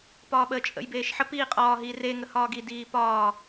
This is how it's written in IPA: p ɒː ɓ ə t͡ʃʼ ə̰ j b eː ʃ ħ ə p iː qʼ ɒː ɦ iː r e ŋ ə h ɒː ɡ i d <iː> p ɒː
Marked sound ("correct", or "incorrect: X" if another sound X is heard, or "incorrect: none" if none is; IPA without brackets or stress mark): correct